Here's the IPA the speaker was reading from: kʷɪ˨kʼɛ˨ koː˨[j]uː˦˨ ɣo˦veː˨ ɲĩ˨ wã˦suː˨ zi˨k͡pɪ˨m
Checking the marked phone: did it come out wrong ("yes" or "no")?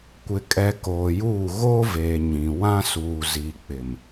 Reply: no